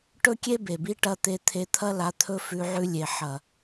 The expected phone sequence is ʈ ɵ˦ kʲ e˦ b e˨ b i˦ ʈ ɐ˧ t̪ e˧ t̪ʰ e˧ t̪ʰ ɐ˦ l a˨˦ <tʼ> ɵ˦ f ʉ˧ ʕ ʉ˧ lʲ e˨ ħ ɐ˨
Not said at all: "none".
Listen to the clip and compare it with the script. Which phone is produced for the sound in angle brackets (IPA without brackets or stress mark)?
t̪ʰ